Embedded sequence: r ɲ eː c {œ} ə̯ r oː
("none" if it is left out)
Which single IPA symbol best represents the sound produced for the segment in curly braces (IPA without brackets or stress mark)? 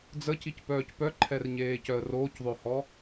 œ